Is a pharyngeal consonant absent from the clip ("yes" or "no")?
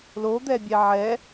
no